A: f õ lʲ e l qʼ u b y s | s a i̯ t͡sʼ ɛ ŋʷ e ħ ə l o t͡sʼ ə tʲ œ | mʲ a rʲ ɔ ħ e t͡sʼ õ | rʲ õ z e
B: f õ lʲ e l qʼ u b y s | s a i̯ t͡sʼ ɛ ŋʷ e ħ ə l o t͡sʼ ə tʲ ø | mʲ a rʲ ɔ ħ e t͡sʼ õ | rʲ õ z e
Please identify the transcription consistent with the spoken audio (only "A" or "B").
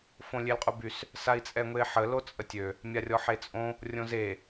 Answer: B